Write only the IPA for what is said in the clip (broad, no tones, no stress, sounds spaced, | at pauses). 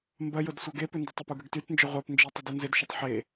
m b ɐ j ʊ d sʷ œ ɡ e p ʏ n d ɪ tˤ ʏ p u ɡ ə ɡ t y t n d͡ʒ ʊ ʁʷ œ p n d͡ʒ i tˤ ə d e n z ɪ d ʃ ə tˤ ħ e